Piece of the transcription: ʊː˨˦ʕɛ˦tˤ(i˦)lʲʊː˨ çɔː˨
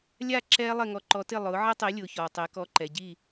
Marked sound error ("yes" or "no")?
yes